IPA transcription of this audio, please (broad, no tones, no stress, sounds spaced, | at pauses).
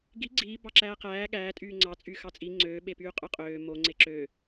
ɡ i ɡ͡ǀ iː b ɑ ǁ æː q æː ɠ æː tʼ yː ŋ͡ǀ ɑ t͡sʼ y x ɑ t͡sʼ i ŋ͡ǀ øː ɓ e p yː qʼ ø qʼ øː m o ŋ͡ǀ e ǁ ø